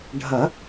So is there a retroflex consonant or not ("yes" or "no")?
yes